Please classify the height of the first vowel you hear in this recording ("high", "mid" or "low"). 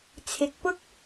high